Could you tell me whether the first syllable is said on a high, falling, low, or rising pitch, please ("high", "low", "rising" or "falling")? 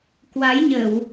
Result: rising